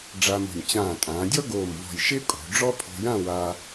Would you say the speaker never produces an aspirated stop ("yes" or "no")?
no